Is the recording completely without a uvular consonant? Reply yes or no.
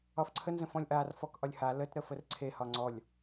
yes